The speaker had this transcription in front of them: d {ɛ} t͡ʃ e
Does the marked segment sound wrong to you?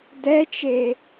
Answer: no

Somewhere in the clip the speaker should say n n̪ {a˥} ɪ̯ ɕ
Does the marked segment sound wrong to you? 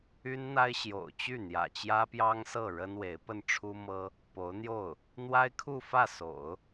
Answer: no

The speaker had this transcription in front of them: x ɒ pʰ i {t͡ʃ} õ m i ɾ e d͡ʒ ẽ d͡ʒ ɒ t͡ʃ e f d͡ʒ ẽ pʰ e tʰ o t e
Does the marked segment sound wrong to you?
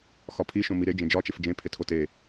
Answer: yes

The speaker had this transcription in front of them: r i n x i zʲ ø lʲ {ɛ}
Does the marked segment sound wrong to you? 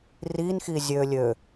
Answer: yes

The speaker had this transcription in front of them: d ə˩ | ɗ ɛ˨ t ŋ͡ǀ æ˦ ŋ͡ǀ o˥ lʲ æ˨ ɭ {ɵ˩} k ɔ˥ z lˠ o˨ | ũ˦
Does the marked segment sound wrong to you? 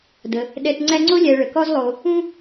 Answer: yes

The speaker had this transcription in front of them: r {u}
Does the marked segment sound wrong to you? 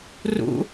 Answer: yes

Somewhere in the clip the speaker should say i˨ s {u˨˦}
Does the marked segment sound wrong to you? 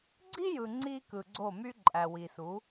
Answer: no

